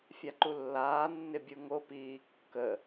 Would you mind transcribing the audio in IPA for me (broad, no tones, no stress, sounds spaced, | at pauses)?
fʲ a ǃ u lː aː nː ɪ bʲ u ŋ o p iː kː ə